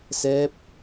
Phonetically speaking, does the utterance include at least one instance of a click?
no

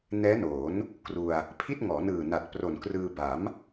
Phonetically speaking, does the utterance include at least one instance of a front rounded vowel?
no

